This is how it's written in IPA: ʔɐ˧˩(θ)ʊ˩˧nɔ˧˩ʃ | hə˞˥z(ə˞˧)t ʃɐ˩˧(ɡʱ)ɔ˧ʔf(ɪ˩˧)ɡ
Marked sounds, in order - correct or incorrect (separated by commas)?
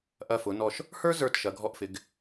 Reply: incorrect, incorrect, correct, correct